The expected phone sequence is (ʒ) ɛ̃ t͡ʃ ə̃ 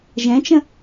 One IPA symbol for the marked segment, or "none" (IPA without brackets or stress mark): ʒ